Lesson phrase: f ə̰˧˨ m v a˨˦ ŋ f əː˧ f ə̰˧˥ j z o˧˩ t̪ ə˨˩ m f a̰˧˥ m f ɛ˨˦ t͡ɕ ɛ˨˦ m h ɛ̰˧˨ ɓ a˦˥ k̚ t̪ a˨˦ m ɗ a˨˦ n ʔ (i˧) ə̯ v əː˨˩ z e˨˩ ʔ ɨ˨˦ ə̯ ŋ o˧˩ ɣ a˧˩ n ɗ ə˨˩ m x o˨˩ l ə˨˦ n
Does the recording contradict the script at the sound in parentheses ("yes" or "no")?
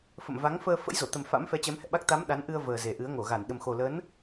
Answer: yes